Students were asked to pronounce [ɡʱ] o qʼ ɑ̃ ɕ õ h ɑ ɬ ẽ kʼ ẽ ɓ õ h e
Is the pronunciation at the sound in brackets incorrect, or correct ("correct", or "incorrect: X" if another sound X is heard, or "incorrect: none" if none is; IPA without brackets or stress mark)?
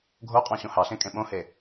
correct